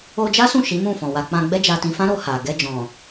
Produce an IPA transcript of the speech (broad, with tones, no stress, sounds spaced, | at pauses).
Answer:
o˧ d͡ʒ a˦ s ũ˦˨ ʃ i˨˦ m ũ˦˨ f ɔ̃˨ w a˧ k͡p ã˧ ɡ͡b ɛ˦ d͡ʒ a˧ t ĩ˧ f ã˦ ɾ o˧ h a˨ ɡ ɛ˧ d͡ʒ ɔ̃˨